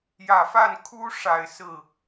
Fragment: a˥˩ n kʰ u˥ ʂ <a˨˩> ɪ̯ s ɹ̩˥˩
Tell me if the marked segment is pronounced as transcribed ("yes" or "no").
yes